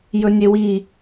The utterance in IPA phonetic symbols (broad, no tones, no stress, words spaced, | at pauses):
jɵnʲewi